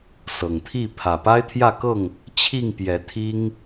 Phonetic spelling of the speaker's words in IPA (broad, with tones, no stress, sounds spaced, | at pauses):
s ɤ˨˩ ŋ t̪ʰ i˥˨ pʰ ä˨˩ p a˦ ɪ̯ t̪ʰ j ä˥˨ k ɤ˥˨ ŋ | t͡ɕʰ i˥˨ ŋ p j ɛ˨˦ t̪ʰ i˦ ŋ